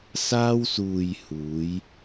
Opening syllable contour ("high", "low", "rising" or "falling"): high